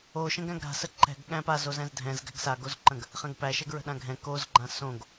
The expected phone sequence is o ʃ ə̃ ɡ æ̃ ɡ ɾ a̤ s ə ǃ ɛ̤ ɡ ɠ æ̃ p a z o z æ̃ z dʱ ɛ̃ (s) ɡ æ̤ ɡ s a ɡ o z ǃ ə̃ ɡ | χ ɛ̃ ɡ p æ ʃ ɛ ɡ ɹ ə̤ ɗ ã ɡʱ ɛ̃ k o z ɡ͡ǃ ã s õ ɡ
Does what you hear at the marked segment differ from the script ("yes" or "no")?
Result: yes